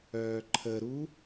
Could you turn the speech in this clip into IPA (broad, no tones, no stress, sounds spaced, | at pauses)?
œː ǃʰ ə ɾ u